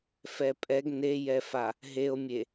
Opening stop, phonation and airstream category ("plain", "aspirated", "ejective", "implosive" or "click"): ejective